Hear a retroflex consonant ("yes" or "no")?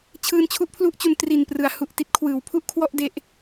no